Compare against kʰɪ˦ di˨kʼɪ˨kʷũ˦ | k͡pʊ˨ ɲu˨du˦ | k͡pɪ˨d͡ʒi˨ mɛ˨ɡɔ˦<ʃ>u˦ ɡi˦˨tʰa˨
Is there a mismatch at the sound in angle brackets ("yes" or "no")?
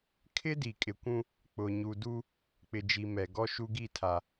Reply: no